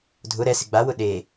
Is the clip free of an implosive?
no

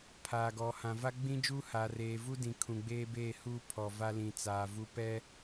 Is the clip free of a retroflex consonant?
yes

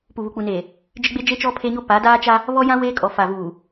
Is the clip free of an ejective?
no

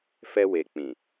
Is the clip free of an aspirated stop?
yes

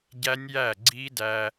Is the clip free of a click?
no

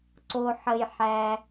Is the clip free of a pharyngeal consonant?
no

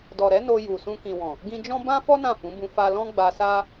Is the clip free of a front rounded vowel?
yes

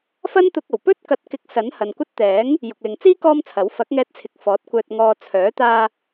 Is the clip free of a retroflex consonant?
yes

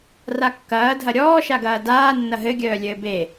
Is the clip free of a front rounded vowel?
no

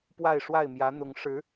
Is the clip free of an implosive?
yes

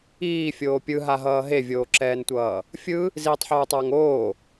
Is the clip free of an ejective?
yes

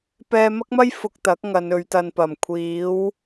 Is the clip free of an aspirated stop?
no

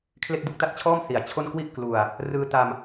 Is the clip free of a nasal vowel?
yes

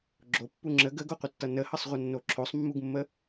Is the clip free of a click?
no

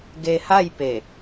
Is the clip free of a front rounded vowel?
yes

